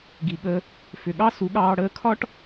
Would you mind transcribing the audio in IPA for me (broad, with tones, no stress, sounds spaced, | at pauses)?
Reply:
ɡ i˨ ɠ ə˧ | f ʏ˨ ɠ ɑ˦ s u˨˦ ɠ ɑː˧ ɽ əː˧ kʰ ɒ˦ ʈ